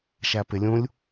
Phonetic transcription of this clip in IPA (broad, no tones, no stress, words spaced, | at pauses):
ʃæpɪlʲũlʲ